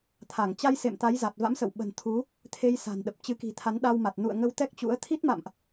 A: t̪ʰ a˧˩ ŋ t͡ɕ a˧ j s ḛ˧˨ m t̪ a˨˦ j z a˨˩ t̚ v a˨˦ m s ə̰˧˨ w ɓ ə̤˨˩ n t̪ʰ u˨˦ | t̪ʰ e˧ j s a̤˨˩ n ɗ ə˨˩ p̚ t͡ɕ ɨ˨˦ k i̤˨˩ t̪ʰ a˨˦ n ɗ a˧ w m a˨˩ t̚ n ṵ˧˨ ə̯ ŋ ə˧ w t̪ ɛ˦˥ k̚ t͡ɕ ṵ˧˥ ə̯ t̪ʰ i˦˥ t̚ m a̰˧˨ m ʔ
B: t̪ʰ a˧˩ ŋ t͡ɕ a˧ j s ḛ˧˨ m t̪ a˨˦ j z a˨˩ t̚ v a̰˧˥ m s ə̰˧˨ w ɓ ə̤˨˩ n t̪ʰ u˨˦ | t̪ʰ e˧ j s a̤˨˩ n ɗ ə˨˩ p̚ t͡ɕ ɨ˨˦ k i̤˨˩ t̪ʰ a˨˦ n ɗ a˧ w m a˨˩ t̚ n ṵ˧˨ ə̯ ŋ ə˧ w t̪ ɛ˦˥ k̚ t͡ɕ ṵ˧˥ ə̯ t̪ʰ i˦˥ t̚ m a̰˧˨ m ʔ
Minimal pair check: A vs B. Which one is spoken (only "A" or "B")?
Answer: B